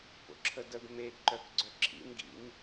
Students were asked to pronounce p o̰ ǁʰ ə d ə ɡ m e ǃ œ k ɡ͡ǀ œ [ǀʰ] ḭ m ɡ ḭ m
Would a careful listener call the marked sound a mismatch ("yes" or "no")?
yes